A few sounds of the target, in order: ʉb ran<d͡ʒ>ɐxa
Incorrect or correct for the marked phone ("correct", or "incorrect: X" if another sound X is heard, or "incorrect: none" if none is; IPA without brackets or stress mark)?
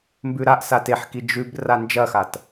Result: correct